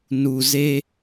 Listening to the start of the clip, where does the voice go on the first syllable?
low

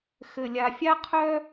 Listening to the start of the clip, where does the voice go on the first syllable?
low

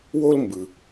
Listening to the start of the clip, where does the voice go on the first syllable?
high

